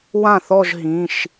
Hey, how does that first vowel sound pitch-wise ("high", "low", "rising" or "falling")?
falling